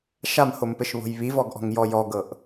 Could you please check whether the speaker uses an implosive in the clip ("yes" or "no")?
no